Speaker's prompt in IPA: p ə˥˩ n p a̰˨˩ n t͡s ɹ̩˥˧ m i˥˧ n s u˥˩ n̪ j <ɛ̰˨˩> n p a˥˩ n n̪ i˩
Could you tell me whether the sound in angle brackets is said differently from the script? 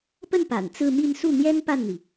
yes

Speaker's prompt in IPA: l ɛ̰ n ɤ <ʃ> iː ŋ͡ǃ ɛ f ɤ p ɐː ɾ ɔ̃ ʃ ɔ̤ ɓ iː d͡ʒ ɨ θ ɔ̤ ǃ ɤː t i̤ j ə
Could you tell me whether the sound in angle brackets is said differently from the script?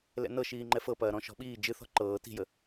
no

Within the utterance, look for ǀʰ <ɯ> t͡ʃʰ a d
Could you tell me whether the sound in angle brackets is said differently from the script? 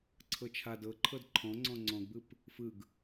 yes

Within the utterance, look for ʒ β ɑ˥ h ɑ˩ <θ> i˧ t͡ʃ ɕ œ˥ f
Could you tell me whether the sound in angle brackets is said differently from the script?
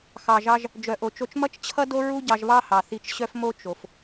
no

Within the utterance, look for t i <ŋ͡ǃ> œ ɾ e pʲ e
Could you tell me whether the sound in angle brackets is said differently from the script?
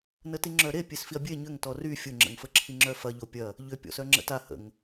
yes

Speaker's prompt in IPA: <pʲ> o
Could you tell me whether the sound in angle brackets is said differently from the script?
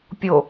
no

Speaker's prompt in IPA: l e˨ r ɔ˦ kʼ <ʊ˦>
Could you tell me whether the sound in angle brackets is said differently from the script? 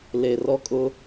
no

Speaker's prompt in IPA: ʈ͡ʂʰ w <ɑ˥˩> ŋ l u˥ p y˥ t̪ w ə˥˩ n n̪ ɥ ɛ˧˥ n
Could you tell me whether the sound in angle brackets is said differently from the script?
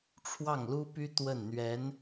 no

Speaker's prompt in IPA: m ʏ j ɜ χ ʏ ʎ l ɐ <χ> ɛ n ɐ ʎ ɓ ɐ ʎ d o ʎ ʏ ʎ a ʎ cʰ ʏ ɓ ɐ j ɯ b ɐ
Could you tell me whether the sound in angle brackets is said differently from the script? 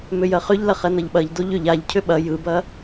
no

